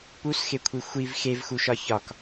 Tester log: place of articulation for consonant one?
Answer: labial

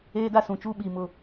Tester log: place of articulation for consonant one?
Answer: alveolar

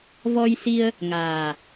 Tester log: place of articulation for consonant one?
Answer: labial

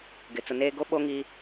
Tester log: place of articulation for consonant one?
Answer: velar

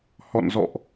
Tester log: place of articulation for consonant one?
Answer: glottal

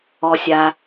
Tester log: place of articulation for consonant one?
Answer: alveolar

